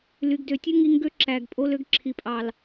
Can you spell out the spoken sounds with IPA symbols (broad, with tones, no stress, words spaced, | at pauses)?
ly˨ɡdø˨tʲu˦ ŋi˧ŋɡø˦ ǁæ˨ɡpʼo˦l ø˦ɡ ǁʰi˨pʼɑ˨l